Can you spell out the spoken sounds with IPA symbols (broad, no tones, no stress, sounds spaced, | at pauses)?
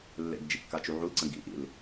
lː ḛ ɡ d͡ʒ ḭ kː a t͡ʃ u ʕ u l ǀ ə̃ ɡ ḭ ʔ ḭ l